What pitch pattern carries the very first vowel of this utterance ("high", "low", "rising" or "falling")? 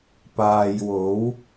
low